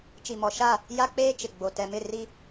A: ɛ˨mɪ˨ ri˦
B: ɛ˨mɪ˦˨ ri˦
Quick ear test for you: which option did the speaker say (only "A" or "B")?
B